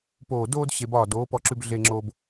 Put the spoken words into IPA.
poː˨doː˧d ɕe˧bɒː˦˨ doː˨˦pɔ˧ǁʉ˧b ɮe˧ŋ͡ǁo˧b

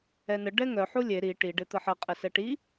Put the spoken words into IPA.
ɛnə ɖɛŋœ ħulʲe ɾi ʈi ɖet̪əħə qʼəsɛʈi

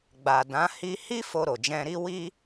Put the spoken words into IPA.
ɡ͡ba˨dã˨˦ hi˧hi˦ fo˧ɾo˨d͡ʒɛ̃˧ɾi˦ wi˦

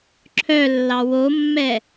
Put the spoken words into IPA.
ǁʰœlːɑ womːɛ

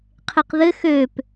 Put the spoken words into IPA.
qʰeqðɘ xøp

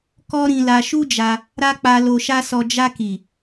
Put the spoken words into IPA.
kɔ˦ɾĩ˧la˧ ʃu˦d͡ʒa˧ | ɾa˦ k͡pa˧ lo˧ʃa˦sɔ˧ d͡ʒa˧ki˨

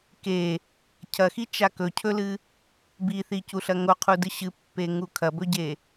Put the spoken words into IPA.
ke | cʰɐxit͡ʃa kɵcʰɵlɨ | biθicuɬɐ ŋoqʰudɨ ɕɨpːeŋu kʰɐbɵɟe

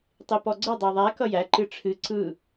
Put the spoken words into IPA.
tˤipɔɡ͡ǀə dˤæðˤæ kʌjæ ǃɨʈ͡ʂʰɨ ǀɯ

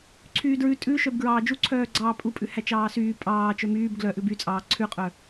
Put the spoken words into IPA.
ǀʰyːdɹʉ tʼʉʃœb ɡɹɑːd͡ʒuǀʰœːɡ͡ǀɑː pʼupʼʉhæ t͡ʃɑːsyː pʼɑː t͡ʃœmyːb ɡlœ ʔʉbyt͡sʼɑː ǀʰʉqʼœ

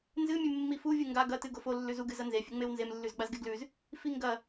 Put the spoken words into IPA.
nzɨmʲʉ mːifuvʲɨ ŋɡa ɡɐtɨ ɡofo lːʉzuɡɨ zɐnzefʲʉŋ͡mew nzemlːʉzɡ͡bazɡe ɡlʉz | fiŋɡɐ

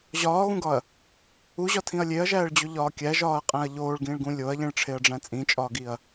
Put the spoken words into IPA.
ʑɒːɣũɡɒɐ̯ | uʑɒtʰĩɐ̯ lʲeɐ̯ʒæːɭd͡ʑoʎɒː kʲæʒɒːɐ̯qʼæ̃ɐ̯ ʎoːɭɡĩːɭɡũ lʲoɐ̯ʎĩɭʈ͡ʂʰeɐ̯ɖ͡ʐæ̃ t͡sʼĩt͡ʃʼɒːɡiɐ̯

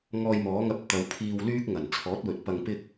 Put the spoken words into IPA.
ŋɔː˧jmɔː˨˥ŋɐ˧p̚ t̪ɐ˨˧wpʰiː˧wlyː˥k̚ ŋɐ˨˩n t͡sʰɔː˨˥t̚wɵ˨t̚ pɐ˧ŋpɪ˥k̚

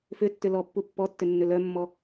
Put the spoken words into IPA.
fʏtːʏ lɔpːu pːɔtːʏnːʏ lœmːɔ

